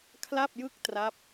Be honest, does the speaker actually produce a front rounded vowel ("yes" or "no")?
no